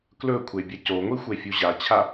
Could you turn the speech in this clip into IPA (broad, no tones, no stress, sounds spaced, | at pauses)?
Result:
k l ɵ kʷʰ e bʲ ɐ c o ŋʷ i xʷ e fʲ u ʑ a t͡ɕʰ a